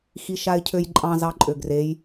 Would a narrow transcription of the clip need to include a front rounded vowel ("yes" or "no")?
yes